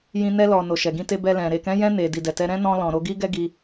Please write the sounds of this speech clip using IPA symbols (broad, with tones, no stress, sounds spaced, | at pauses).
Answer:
j ĩ˧ n ɛ˧ l ɔ˨ n o˨ ʃ ɛ˨ ɡ ĩ˧ t e˧ b ɛ˧ l ɛ̃˨ ɾ e˨ k ɛ̃˨˦ j ɛ̃˧ n e˨ d i˨ d ɛ˨ t ɛ˧ ɾ ɛ̃˦ n ɔ̃˧ l ɔ̃˨ ɾ o˧ ɡ i˦ ɡ ɛ˦ ɡ i˧